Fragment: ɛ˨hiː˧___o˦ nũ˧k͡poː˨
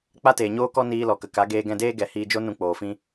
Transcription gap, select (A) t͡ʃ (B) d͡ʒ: B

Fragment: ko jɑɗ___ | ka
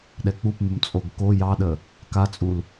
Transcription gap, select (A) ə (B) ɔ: A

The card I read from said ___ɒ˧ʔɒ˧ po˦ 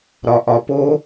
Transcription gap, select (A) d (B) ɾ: B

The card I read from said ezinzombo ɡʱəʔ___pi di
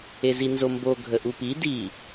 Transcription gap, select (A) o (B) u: B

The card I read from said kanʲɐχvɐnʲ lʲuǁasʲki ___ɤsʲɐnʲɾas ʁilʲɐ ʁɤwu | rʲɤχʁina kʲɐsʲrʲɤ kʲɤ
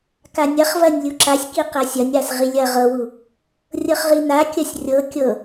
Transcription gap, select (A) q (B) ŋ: A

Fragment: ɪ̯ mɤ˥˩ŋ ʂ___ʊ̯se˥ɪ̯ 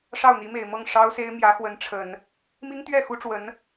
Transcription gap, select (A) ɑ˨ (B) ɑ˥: B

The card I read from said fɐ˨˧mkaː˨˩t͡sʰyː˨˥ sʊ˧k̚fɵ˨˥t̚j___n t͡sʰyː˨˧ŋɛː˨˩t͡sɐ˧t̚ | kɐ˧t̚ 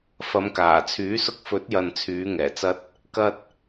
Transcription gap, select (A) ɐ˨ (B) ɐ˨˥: A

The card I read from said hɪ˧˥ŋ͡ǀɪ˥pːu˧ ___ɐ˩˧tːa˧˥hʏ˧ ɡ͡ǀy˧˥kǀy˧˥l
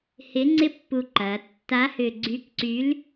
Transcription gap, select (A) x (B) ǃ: B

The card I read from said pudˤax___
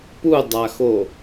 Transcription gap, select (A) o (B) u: A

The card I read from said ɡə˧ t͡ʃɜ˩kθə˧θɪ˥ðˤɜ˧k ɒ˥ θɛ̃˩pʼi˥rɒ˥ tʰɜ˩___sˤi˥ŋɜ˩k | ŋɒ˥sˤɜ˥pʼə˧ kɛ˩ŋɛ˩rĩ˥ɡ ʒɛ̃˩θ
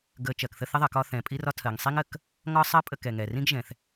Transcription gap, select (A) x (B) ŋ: B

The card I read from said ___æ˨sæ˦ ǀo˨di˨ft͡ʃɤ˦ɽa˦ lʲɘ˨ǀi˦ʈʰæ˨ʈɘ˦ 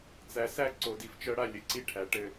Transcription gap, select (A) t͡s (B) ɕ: A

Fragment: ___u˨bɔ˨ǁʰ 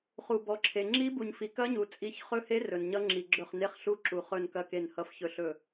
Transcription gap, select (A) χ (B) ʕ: A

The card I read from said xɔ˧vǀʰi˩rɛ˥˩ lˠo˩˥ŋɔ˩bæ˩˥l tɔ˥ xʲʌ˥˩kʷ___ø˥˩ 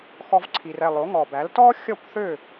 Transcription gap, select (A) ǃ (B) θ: B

